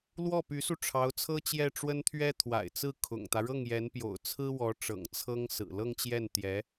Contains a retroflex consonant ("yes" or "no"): yes